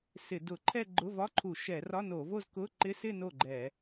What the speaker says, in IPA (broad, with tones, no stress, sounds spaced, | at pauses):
s ɪ˧˩˧ d ʊ˧˩˧ ǃʰ ɛ˥˧ ɡ͡ǃ ʊ˧˥˧ v ɒ˧˥˧ ǃʰ u˧˩˧ ʃ ɛ˧˩˧ r ɒ˧˥˧ n o˧˩˧ v o˥˧ z k ʊ˧˥˧ ǃ ɪ˧˥˧ s ɪ˥˧ n o˥˩ ɡ͡ǃ ɛ˧˩˧